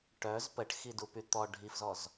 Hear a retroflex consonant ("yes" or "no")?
yes